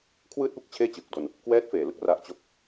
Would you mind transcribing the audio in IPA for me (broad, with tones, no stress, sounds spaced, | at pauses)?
kʰ w ɯː˥˩ t̚ p u˥˩ k̚ t͡ɕʰ eː˥˩ t͡ɕ ɯː˨˩ k̚ d o˧ n | k w ɛː˦˥ t̚ f eː˨˩ l ɯ˥˩ k̚ r a˦˥ ʔ t͡ɕ o˥˩ k̚